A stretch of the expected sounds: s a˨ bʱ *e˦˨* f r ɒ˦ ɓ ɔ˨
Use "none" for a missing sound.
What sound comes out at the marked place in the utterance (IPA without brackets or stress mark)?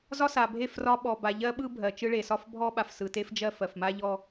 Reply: e˦˨